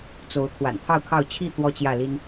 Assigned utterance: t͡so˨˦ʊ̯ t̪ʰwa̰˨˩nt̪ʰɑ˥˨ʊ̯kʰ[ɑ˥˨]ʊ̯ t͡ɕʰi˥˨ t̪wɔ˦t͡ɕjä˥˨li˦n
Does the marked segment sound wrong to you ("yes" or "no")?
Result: no